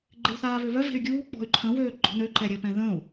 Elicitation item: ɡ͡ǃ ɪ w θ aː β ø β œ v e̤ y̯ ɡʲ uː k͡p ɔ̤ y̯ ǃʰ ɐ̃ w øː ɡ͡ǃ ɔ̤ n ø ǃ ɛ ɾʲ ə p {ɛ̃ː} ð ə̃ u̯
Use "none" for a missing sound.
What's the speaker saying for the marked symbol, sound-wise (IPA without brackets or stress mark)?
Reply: ɛ̃